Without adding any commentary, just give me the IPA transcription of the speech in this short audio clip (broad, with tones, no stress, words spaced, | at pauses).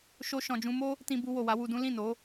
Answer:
ʃo˧ ʃɔ̃˨d͡ʒũ˧mo˦ | tĩ˧bu˧ wo˨wa˨˦wu˧dũ˦ lĩ˦˨no˨˦